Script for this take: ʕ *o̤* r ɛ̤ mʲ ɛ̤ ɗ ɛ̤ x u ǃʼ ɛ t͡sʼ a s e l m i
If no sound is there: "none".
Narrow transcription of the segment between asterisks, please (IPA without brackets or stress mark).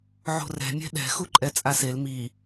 o̤